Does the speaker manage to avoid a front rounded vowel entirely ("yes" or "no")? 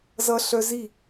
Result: no